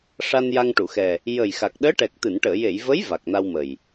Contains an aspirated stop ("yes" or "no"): no